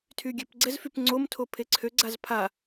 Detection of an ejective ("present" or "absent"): absent